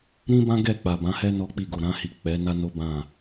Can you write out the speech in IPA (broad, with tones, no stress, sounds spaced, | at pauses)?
ɾ ĩ˦ b ã˦ ɡ ɛ˦˨ k͡p a˨ b ã˨˦ h ɛ˦ n ɔ˦ k͡p i˦˨ ɡ o˨ ɾ ã˧ h i˨ k͡p ɛ˨˦ n a˦ n o˦ b ã˦˨